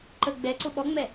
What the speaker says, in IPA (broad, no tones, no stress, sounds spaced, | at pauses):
ǃ ə ɡ͡b ɛ ǀ ʊ ɓ ɔ ŋ͡m ɛ